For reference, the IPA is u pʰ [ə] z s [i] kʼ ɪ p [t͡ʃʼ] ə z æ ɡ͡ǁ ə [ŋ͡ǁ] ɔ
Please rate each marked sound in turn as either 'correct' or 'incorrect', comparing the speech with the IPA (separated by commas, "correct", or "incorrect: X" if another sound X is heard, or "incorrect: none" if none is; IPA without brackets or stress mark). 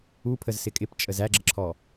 correct, incorrect: ɪ, correct, incorrect: ǁʰ